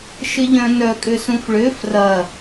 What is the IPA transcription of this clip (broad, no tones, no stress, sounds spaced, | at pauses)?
ʃ ɪ ʎ œ̃ n œ kʼ ʏ s ũ f ɭ ʏ f r ɐ